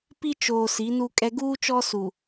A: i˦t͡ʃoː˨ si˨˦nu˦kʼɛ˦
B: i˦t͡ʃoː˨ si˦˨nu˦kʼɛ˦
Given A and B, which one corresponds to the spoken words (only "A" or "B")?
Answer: A